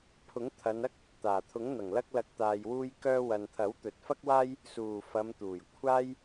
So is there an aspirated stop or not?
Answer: yes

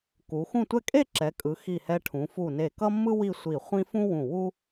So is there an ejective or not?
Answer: yes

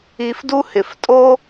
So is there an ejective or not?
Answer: yes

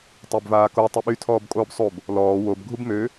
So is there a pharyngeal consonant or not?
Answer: no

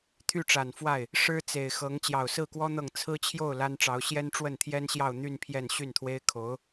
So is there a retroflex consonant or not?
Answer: yes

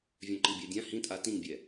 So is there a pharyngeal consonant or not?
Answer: no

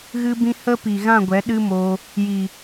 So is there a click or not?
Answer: no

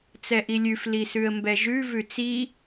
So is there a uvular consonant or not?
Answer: no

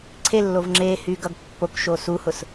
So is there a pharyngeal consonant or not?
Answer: no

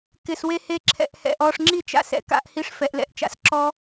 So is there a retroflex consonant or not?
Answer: yes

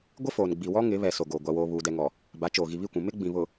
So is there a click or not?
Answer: no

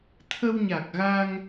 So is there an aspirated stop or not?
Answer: yes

